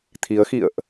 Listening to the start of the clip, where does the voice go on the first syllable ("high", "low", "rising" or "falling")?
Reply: rising